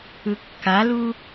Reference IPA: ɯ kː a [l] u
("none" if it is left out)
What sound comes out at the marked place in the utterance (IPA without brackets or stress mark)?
l